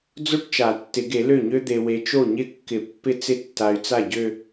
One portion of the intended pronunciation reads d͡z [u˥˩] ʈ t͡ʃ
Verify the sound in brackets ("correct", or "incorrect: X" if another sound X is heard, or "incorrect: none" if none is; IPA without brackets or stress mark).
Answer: incorrect: o˥˩